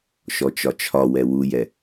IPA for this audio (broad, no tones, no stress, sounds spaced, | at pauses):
ʃ ɔ t͡ʃ ɒ t͡ʃʰ ɒ w ɛ w u j ɛ